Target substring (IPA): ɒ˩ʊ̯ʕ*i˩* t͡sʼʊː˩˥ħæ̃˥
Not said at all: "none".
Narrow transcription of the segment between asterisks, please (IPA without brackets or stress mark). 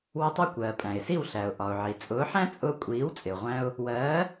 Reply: i˩